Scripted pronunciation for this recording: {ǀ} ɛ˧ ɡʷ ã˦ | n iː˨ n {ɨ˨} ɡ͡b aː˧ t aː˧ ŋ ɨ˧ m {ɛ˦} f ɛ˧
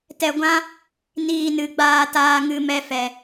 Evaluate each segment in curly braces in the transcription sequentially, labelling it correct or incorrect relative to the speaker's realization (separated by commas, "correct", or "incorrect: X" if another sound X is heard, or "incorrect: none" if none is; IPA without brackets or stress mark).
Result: incorrect: t, correct, correct